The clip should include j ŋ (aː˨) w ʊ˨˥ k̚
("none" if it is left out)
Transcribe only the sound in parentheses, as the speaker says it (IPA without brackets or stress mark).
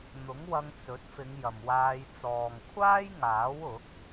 aː˨˥